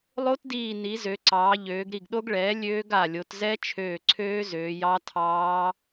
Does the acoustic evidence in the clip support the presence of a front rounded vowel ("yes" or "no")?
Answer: yes